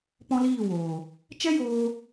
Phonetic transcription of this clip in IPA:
p ɔ̃˦ l iː˦˨ w oː˨ | t͡ʃ ɛ˦ j oː˧

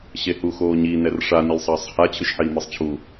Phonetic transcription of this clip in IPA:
ɕ e h u x oː ɲ i n ɛ r ʂ a n i lʲ sˤ ɐː sˤ h a t͡ɕʰ ɨ ʃ ħ iː m i sˤ t͡ɕʰ u

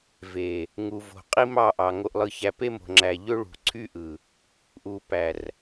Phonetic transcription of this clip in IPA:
v e˨ | ŋ u˨ v o̤˨ qʼ i˦ m ɑ˦˨ ʔ ɑ˨ ŋ o˨ ʔ lˠ ɯ˨ ç æ˨ p e˦ m o̤˨ ŋ͡ǁ æ˨ ʎ ø˦ ɭ ṳ˨ ǀʰ y˦ ʔ ɯ˨ | ʔ u˨ p æ˨ r

